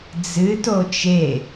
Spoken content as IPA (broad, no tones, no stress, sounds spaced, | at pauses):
d͡z ɨ t o t͡ʃ e